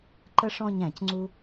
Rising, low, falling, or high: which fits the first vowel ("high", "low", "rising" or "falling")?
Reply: high